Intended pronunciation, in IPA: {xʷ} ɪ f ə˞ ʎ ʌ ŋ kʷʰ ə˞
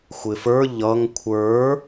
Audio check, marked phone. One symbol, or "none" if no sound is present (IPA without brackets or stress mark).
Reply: xʷ